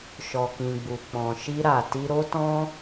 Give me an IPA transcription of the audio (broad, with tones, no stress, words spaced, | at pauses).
ʃɔ˨kĩ˨ɡ͡bu˨ k͡pɔ̃˨ʃi˧ɾa˨ ti˧ɾo˦tɔ̃˦